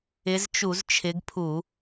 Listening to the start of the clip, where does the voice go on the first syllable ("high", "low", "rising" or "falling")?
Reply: rising